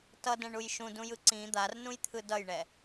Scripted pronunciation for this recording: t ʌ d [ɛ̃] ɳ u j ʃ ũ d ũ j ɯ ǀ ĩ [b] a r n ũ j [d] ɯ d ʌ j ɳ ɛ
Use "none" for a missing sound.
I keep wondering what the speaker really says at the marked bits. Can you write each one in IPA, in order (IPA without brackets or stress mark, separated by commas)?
ɛ̃, d̪, t̪ʰ